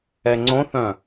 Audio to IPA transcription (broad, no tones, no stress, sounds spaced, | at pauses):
ɛ ŋ͡ǀ õ θ œ̃